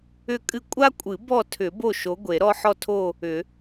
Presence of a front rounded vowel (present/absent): present